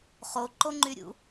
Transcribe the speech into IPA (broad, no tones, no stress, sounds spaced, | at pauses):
χ o ǃ o ŋ͡ǃ y ɾʲ ṵ